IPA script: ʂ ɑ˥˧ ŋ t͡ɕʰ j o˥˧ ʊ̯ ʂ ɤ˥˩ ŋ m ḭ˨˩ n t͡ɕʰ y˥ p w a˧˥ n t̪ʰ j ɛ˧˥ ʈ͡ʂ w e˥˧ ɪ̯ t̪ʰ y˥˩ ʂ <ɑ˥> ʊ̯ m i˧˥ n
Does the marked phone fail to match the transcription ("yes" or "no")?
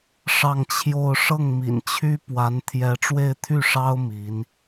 no